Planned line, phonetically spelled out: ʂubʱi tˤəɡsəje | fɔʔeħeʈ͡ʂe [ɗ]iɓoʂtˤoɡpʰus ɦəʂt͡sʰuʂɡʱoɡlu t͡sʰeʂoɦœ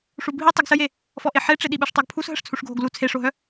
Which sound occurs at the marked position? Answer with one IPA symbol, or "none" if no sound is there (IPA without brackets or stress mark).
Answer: ɗ